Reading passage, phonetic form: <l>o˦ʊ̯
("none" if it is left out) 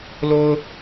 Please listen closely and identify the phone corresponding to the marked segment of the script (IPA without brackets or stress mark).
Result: l